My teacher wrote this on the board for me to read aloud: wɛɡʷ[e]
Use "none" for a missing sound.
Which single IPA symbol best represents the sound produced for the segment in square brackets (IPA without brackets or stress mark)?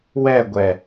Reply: ɛ